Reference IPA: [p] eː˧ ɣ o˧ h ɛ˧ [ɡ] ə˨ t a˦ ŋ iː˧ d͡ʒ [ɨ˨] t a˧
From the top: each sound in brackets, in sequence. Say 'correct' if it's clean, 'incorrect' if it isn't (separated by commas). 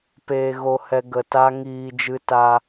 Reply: correct, correct, incorrect